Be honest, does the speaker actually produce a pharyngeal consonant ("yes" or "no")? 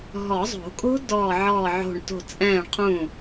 yes